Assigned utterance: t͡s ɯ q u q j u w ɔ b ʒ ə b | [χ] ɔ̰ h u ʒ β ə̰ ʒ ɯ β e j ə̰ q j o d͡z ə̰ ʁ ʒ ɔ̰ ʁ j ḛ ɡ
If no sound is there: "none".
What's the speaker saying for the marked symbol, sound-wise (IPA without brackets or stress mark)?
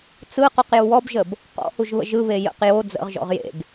q